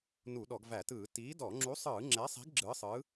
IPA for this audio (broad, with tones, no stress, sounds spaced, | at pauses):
n u˧˩˧ ɗ ɔ˧˩˧ ɡ v æ˧˩˧ t ɯː˧˩˧ t iː˨˥ d ɔ˧˩˧ ŋ͡ǁ u˨˥ sˤ ɯː˧˩˧ ŋ͡ǁ ɛ˨˥ sˤ i̤˨˥ ɡ ɡ͡ǁ ɯː˨˥ sˤ ɯː˨˥